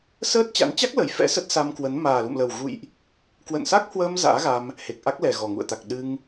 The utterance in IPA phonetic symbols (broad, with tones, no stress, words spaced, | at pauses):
səː˦˥t̚t͡ɕa̰˧˥n t͡ɕa˦˥k̚lə˨˩j fɛ̰˧˥sə˦˥t̚sa˧mkwə˨˦n maː˨˩lṵ˧˨mlə˨˩wɣṵ˧˨jʔ | kwə̰˧˨nsa˦˥k̚hwəː˧m za̰ː˧˥ɣa˧m | he˨˩k̚ʔa˦˥k̚lɛ˨˩ ɣɔ˨˩ŋṵ˧˨ə̯t̪a˨˩k̚ ɗɨ˧ŋ